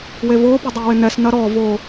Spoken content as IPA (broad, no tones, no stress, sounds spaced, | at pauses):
w e v ʊː p ʊ dˤ ɛ w ɪ n ɛ s n ɐ ɾ ɔ v oː